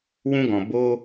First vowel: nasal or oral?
nasal